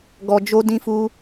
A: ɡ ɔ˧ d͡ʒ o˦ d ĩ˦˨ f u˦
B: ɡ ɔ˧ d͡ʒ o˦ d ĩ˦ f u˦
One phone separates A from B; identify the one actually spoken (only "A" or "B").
B